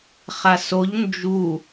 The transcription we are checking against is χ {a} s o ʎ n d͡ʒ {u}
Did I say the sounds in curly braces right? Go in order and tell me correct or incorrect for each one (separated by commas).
correct, correct